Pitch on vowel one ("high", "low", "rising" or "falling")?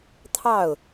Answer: falling